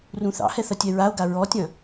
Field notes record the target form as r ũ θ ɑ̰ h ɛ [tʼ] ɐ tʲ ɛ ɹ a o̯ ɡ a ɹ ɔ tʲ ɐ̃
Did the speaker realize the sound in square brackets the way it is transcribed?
no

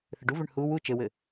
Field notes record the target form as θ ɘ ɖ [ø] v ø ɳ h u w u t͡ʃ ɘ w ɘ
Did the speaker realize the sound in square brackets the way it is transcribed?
no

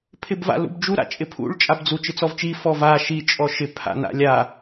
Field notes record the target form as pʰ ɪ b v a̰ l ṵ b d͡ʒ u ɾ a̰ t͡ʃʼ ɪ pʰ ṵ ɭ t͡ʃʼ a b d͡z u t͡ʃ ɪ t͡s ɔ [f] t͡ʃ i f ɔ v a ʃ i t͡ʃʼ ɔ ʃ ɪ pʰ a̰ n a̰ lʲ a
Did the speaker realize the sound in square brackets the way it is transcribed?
no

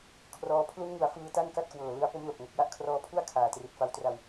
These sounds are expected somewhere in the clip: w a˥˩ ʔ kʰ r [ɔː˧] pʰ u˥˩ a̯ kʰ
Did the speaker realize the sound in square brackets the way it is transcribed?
yes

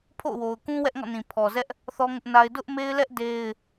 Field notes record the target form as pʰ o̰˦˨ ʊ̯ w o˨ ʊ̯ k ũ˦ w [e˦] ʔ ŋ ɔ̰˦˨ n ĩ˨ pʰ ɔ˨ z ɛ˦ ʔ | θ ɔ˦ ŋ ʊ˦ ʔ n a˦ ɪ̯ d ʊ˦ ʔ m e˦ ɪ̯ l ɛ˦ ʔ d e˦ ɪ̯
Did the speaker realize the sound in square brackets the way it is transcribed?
no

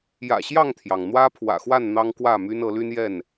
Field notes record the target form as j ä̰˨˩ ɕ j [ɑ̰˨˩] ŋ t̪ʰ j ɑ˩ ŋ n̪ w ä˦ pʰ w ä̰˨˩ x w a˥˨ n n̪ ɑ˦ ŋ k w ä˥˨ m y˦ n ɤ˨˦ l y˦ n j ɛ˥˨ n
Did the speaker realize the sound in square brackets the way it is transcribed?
no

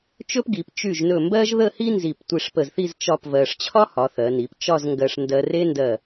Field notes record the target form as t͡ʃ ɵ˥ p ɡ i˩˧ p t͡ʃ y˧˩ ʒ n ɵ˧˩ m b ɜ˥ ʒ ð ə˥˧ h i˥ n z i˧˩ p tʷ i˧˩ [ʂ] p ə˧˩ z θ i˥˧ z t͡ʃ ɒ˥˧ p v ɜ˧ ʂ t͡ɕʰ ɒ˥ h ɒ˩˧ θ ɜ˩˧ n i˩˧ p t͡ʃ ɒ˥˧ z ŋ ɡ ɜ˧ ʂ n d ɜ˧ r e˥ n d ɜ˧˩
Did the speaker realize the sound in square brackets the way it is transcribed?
yes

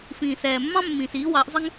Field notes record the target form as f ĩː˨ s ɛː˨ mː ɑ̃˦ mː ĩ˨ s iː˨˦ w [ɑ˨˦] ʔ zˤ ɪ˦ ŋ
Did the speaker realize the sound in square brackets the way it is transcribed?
yes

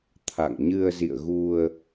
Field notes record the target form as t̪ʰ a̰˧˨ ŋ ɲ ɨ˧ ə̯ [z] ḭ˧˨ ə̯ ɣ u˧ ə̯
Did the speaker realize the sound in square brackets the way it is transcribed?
yes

